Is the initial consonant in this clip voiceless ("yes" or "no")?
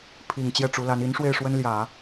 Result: yes